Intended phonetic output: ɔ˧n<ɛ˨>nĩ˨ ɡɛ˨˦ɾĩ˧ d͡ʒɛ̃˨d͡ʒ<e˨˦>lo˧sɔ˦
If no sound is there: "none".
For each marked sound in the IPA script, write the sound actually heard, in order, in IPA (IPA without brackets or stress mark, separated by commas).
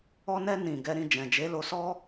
ɛ˧, e˨˦